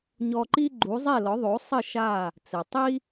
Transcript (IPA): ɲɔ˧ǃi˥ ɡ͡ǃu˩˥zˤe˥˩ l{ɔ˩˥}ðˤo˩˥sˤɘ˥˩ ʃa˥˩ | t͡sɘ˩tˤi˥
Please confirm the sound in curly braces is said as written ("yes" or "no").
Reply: yes